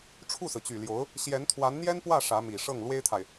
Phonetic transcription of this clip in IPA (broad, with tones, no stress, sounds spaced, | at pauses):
ʈ͡ʂʰ u˥˩ s ɹ̩˩ t͡ɕ y˨˩ l j o˧˥ ʊ̯ | ɕ j ɛ˧˥ n t̪ʰ w a˧˥ n n̪ j ɛ˥ n p w ä˥˩ ʂ ä˧˥ m i˨˩ ʂ ɤ˥˩ ŋ l w e˥ ɪ̯ t̪ʰ a˨ ɪ̯